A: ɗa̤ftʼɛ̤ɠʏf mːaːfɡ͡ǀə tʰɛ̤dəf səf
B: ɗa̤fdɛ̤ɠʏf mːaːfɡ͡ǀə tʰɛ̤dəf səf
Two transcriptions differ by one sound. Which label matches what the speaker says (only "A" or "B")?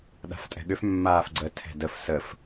A